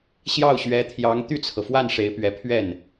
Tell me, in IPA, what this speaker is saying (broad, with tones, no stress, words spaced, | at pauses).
ɕjɑ˥˩ʊ̯ɕɥɛ˧˥t̪ʰjɑ˧˥ŋ t̪y˥˩t͡sʰɤ˩fwa˥˩n ʂe˧˥ɪ̯pɥɛ˧˥ pʰɥɛ˥˩n